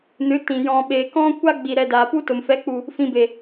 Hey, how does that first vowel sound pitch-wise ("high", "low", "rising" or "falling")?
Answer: rising